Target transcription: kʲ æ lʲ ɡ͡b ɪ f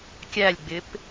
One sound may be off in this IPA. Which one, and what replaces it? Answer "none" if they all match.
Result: f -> p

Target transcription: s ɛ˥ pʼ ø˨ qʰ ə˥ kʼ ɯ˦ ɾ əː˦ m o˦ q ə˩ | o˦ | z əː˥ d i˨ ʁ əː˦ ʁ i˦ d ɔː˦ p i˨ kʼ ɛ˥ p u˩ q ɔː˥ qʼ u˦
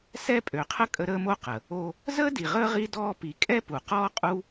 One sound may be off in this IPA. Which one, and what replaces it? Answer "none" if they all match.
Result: ɯ˦ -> ə˦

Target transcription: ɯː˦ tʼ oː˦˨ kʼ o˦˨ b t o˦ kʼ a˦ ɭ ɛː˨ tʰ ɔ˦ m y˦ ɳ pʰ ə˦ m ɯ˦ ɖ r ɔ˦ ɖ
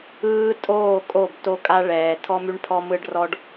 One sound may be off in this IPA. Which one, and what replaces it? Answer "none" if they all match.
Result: ə˦ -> ɔ˦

